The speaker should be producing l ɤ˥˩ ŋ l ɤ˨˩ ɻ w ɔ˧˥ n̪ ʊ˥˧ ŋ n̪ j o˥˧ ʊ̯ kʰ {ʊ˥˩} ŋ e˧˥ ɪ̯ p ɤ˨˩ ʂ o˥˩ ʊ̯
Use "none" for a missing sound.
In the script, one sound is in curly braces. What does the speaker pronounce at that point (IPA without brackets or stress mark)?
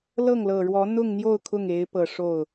ʊ˥˩